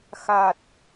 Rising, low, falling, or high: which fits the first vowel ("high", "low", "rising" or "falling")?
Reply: low